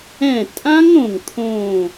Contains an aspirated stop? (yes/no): yes